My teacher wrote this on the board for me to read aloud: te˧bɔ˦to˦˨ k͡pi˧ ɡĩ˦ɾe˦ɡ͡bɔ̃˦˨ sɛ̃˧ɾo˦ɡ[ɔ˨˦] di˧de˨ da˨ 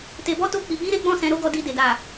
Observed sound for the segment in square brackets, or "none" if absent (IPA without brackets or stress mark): ɔ˧